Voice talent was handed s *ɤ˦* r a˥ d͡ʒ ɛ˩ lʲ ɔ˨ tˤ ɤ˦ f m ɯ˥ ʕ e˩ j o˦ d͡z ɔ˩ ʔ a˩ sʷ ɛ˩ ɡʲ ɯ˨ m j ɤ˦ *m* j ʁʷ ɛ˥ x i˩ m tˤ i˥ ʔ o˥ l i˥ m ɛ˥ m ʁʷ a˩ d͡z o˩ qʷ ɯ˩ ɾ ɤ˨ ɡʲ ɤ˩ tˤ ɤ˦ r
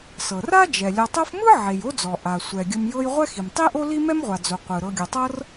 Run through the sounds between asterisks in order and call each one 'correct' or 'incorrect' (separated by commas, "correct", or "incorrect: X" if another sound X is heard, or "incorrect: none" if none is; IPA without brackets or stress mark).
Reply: incorrect: ɤ˩, incorrect: none